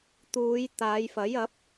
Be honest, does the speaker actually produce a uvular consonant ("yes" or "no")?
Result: no